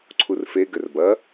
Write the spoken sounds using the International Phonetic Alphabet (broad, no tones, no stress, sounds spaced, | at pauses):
ǀʰ u r f e ɡ ɘ r b ɐ